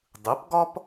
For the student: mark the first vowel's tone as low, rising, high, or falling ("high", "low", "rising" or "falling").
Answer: rising